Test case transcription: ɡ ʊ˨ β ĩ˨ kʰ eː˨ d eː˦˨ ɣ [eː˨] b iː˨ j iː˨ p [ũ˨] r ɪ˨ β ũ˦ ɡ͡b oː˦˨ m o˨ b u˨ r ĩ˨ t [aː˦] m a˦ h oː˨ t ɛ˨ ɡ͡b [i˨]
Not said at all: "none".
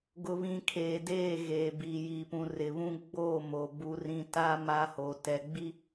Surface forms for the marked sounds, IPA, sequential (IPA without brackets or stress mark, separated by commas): eː˨, ũ˨, aː˦, i˦